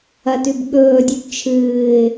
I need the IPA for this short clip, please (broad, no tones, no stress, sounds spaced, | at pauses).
ɐ t ʉ b ɠ ɵː dʲ ʉ b t͡ʃʰ ɨː ɪ̯